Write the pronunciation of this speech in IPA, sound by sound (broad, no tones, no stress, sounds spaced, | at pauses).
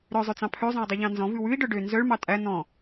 ɾ œ zˤ ø t͡s ɑ̃ pʰ ø zˤ œ̃ u̯ dˤ ʉ ʎ ɑ̃ n z ɔ̃ v ʉ w ʉ i̯ ɖ œ ɖ ø n z œ ɭ m ɑ tʼ æ n̪ ɔ̃